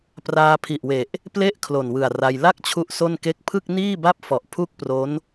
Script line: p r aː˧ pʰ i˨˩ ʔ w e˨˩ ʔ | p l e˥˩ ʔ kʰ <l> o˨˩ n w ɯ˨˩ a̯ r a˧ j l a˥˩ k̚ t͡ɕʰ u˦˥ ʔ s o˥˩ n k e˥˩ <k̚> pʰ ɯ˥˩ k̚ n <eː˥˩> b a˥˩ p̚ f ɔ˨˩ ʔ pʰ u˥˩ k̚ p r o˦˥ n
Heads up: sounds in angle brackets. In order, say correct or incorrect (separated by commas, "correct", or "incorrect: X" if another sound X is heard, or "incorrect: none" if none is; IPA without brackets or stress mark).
correct, correct, incorrect: iː˥˩